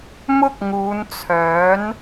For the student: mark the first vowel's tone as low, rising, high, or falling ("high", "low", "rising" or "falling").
high